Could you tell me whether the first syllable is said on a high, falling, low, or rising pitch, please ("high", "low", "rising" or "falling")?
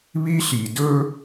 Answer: high